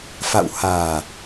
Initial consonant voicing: voiceless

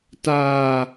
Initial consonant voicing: voiceless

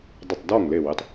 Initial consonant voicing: voiced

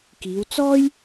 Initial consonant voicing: voiceless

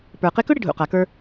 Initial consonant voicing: voiceless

